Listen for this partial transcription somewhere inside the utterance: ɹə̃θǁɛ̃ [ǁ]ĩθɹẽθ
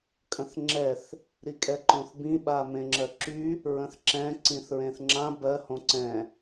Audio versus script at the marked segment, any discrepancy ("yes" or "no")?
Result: yes